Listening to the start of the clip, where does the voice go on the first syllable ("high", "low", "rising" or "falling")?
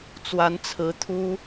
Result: rising